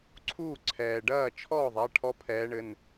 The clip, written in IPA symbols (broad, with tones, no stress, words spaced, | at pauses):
ǀʰuː˥˩ǀʰɛː˩ ɖɐː˥˩t͡ʃʰɔː˥˩ðˤa˩˧˩ ʈʰɔ˦pʰɛː˨˦ɳɘ˩˧˩n